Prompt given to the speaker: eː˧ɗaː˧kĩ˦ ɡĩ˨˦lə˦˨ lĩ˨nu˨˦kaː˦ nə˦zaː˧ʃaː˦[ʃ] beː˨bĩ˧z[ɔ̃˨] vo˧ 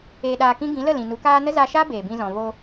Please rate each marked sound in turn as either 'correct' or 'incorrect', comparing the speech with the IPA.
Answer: incorrect, correct

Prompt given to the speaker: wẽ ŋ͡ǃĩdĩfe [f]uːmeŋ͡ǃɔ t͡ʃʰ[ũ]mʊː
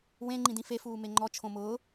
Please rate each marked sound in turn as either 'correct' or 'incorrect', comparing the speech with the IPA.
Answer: correct, incorrect

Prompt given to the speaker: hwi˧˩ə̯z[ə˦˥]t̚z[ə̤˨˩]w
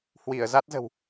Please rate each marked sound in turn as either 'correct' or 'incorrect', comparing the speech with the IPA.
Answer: incorrect, correct

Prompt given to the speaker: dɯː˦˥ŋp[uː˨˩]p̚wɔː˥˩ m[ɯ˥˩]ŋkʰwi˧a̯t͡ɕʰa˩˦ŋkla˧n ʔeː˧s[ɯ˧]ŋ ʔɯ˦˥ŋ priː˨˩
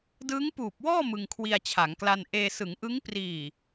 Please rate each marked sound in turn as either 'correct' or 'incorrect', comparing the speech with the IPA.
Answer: correct, incorrect, incorrect

